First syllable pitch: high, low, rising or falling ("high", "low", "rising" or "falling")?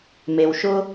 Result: low